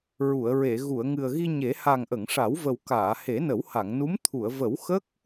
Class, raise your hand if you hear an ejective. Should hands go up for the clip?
no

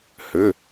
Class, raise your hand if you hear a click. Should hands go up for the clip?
no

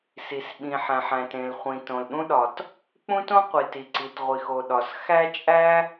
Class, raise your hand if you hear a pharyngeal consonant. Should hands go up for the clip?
yes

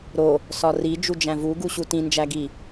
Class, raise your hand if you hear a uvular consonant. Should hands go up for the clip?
no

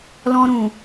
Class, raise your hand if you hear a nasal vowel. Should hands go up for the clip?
yes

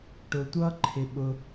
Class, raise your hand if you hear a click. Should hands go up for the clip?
yes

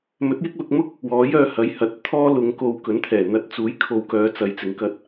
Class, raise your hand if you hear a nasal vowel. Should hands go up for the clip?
no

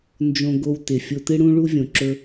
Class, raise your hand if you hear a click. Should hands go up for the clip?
yes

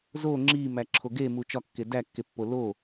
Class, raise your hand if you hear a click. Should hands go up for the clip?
yes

